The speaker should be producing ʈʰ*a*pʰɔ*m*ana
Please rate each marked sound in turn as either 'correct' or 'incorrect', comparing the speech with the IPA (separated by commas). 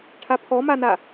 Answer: correct, correct